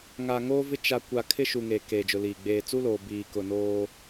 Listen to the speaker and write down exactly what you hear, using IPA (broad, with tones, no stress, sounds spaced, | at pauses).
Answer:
ŋ a˨ ŋ oː˦ v ɪ˦ t͡ʃ a˨ kʷ a˨ kʰ ɪ˦ ʃ u˨ ŋ eː˨ k eː˨ d͡ʒ ʊ˨ l iː˨ ɡ͡b eː˨ t͡s u˦ l oː˨ b iː˨ k ʊ˨ n oː˦